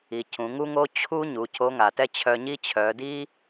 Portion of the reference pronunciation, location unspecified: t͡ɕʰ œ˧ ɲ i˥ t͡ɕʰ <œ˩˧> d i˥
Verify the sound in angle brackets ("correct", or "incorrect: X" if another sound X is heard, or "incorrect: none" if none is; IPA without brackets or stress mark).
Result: correct